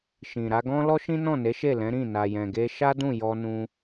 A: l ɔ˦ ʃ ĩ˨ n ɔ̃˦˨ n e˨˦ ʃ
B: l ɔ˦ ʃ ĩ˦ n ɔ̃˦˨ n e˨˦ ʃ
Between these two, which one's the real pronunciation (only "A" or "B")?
B